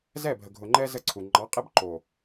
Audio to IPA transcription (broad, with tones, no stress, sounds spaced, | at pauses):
z ɛ˦˨ bʱ ə˨ ɡʱ ʊ˨ ŋ͡ǃ ɛ˦ z ə˦ ǀʰ u˨ ŋ͡ǃ ɑ˨˦ qʼ ɛ˦ b ǃ o˨